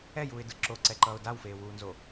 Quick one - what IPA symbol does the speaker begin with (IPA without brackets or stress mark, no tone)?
ɛ